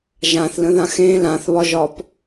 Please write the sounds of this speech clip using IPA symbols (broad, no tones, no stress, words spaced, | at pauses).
ʒãθlə̃ðã xẽ lãθβɒʒɒp